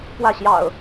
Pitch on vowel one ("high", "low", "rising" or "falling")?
falling